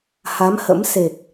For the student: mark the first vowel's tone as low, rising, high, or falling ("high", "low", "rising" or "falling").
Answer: rising